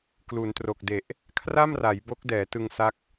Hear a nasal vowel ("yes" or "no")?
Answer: no